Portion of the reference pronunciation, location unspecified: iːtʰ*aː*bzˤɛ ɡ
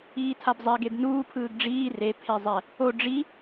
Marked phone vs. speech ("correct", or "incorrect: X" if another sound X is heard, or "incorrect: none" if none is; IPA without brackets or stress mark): incorrect: a